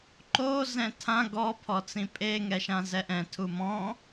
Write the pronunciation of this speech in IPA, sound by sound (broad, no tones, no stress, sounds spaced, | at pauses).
ǃ o z ɛ̃ tʰ ã ɡ ɔ pʰ ɔ t͡s ĩ pʼ e ŋ ɛ ʃ ã z ɛ ʔ ɛ̃ tʰ u m ɔ̃